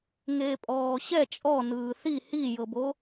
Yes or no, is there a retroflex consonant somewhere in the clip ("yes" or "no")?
no